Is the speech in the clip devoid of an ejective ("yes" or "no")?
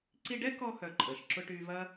no